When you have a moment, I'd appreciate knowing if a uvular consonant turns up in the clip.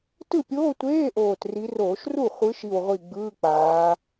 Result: yes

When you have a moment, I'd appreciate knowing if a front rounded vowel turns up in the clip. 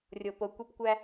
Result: no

